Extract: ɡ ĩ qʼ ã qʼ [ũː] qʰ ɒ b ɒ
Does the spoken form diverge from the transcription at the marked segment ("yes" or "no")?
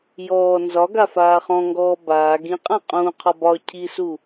no